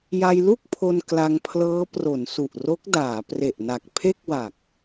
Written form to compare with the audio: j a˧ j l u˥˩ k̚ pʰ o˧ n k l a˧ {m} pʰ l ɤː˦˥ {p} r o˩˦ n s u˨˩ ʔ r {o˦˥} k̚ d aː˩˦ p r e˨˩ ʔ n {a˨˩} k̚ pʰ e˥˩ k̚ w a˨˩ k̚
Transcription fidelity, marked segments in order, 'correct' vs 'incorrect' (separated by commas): incorrect, correct, correct, correct